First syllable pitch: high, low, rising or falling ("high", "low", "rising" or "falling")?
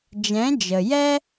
rising